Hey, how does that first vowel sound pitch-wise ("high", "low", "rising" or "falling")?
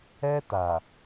high